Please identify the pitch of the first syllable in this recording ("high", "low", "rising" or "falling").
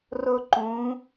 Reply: high